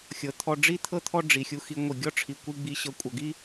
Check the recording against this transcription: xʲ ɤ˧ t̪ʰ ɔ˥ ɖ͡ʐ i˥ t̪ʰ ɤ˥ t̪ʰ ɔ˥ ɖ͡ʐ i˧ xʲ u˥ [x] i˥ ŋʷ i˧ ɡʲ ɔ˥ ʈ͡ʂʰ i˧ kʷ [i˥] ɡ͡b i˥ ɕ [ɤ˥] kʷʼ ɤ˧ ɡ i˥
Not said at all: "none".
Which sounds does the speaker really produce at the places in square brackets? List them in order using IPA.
x, i˥, ɤ˥

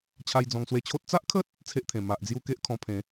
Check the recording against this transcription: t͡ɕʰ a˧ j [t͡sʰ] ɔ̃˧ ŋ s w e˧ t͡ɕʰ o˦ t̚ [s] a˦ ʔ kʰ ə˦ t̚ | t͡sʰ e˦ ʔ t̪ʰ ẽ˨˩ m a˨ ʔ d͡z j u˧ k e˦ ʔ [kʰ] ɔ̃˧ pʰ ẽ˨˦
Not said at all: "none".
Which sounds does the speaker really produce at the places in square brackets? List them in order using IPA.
d͡z, t͡s, kʰ

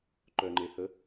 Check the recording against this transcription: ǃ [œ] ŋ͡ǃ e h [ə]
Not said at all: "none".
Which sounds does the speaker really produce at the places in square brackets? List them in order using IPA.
œ, ə

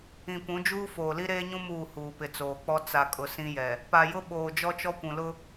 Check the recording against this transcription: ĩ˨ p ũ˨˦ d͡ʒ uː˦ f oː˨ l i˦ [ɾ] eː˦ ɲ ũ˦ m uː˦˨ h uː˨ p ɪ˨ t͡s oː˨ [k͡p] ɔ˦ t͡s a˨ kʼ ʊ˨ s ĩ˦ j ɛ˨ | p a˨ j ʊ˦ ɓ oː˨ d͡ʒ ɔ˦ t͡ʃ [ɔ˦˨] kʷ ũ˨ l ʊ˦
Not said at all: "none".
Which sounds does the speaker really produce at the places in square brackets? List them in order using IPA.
ɾ, k͡p, ɔ˦

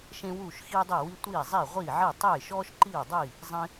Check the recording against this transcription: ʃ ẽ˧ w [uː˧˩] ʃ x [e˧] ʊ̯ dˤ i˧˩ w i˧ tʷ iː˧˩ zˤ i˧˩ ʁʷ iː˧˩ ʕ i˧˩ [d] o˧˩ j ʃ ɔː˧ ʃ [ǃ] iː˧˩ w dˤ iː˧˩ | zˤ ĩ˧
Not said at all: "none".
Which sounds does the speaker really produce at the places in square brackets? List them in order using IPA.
uː˧˩, i˧, tˤ, ǃ

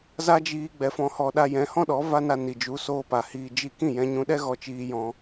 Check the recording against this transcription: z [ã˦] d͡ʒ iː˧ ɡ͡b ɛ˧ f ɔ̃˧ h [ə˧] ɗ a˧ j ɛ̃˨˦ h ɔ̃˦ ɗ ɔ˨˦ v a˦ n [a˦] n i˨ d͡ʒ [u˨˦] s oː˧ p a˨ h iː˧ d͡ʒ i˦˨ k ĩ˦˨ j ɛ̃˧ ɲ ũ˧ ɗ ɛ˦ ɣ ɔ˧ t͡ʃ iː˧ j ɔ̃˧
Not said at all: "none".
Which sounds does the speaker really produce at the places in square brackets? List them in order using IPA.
a˦, ɔ˧, a˧, u˨˦

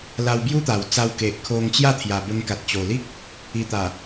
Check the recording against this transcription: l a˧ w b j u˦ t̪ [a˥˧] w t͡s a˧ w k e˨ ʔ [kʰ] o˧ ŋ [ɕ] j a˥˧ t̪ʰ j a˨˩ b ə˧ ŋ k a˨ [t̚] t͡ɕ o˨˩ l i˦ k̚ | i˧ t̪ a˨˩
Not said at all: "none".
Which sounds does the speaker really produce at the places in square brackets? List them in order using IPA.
a˨˩, kʰ, t͡ɕ, t̚

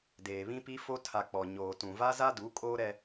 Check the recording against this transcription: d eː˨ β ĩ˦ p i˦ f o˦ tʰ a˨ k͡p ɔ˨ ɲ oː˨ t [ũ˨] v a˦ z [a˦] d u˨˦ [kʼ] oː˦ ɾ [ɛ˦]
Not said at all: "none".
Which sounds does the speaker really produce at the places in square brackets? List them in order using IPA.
ũ˨, a˦, kʼ, ɛ˦

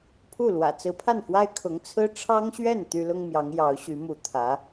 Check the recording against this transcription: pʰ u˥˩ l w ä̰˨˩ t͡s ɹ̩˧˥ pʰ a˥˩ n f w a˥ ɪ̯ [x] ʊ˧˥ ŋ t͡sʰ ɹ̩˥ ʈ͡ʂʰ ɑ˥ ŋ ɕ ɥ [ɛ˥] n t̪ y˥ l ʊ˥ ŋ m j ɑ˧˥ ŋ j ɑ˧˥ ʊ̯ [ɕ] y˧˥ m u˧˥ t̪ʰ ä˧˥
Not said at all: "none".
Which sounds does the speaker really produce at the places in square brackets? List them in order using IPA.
kʰ, ɛ˥˩, ɕ

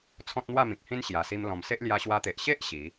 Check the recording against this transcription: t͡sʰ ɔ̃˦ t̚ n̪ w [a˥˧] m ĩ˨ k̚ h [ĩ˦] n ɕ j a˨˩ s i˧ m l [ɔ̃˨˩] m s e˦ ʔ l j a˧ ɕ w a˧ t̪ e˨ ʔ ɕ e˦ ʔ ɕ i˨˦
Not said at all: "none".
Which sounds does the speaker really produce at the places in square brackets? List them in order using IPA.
a˥˧, ĩ˦, ɔ̃˨˩

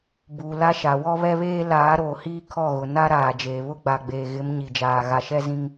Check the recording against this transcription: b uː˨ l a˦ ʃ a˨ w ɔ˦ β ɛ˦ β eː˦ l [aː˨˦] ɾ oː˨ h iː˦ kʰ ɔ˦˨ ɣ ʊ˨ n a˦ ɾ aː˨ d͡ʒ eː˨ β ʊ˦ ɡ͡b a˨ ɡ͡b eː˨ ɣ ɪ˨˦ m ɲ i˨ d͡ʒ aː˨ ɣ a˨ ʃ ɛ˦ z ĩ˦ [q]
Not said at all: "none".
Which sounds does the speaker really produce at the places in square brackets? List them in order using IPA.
aː˨˦, ŋ

